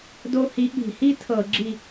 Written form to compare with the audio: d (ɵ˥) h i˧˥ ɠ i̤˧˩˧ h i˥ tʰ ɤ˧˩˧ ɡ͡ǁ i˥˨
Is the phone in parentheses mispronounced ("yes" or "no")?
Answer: yes